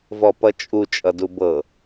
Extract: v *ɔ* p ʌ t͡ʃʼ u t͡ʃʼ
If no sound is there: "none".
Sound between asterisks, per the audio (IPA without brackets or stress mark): ɔ